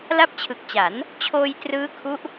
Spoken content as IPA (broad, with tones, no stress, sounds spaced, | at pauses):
l a˦˥ p̚ t͡ɕʰ ɯ˨˩ k̚ t͡ɕ a˩˦ n | t͡ɕʰ oː˧ j t r ɯː˦˥ kʰ u˦˥ ʔ